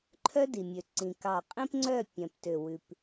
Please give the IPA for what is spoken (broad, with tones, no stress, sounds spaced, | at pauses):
ǃʰ œ˦ d i˨ mʲ ø˨ ǀ ĩ˨ k ɑ˨ qʼ ĩ˦ p ŋ͡ǀ œ˦˨ pʲ œ̃˨ p t ø˨ w ʉ˨ p